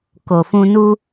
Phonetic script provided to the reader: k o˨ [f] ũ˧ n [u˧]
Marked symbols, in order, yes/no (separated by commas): yes, yes